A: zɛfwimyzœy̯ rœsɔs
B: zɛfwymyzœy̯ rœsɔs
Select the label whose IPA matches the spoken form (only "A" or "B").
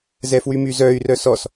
B